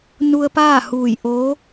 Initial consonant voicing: voiced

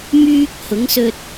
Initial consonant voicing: voiced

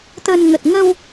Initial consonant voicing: voiceless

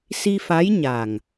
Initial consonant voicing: voiceless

